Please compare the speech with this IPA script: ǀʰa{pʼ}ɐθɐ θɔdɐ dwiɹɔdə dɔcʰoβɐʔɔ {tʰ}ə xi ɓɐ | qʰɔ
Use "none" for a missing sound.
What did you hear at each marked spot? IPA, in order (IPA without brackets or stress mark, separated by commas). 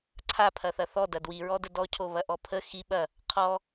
pʰ, pʰ